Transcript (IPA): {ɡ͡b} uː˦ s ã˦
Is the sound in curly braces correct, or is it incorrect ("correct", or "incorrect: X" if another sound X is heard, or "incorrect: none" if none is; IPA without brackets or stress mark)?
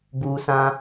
incorrect: b